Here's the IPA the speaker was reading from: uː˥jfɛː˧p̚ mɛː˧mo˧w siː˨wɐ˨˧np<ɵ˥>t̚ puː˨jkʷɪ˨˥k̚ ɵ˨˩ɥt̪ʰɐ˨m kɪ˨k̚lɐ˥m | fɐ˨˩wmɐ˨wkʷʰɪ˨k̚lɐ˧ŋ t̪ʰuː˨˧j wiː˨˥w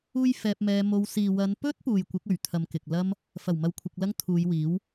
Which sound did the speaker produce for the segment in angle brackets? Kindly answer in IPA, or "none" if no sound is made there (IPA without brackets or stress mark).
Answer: ɵ˥